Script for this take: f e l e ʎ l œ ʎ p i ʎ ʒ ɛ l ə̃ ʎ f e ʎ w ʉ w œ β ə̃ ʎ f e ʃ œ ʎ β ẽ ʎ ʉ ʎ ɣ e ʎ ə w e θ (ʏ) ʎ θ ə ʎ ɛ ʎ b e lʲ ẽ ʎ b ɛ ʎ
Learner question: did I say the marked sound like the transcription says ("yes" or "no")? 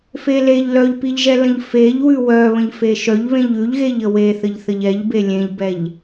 no